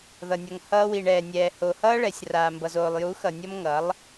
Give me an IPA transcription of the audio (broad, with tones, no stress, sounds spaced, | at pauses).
ð ʌ˨ nʲ ʌ˨ ŋ h ʌː˧ w i˨ ɳ ɛː˨ nʲ ɛː˨ h o˨ h ʌː˦ ɭ ɛ˨ sʲ r aː˨ m b ʌ˨ z oː˨ lˠ j u˨˦ x ʌ˨ nʲ ʌ˦ m ŋ ʌ˨˦ lˠ